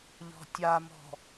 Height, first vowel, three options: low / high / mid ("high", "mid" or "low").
mid